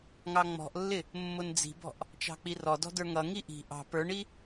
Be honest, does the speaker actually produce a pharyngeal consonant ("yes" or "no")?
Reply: no